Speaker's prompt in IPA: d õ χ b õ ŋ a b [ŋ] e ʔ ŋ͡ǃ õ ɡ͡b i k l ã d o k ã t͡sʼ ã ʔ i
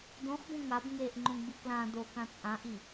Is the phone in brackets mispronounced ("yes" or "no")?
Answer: no